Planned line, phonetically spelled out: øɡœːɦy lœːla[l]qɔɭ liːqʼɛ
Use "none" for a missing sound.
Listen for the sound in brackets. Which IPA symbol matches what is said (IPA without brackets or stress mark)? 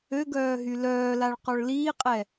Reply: ɭ